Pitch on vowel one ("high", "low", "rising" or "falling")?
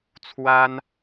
high